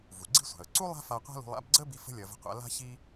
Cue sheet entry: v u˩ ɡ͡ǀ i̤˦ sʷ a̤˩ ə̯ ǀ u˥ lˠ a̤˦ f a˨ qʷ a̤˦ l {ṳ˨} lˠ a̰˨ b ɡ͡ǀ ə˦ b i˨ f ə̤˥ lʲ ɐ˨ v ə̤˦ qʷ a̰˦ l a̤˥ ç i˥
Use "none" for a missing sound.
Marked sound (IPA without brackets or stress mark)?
ṳ˨